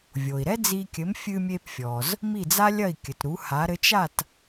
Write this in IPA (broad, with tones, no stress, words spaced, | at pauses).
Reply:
vʲo˩i̯ɾɛ˥d͡zi˧kʲɘ˩˥m fʲɨ˧mʲe˧pfʲɔ˩z | mi˥˩d͡za˥lʲɐ˥˩i̯ kʲɘ˩tɾu˩˥ha˩˥ ɾɘ˩˥t͡ʃ a˥˩t